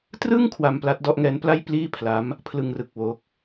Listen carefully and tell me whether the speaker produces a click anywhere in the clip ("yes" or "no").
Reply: no